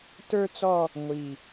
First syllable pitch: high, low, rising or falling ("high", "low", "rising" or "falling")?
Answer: high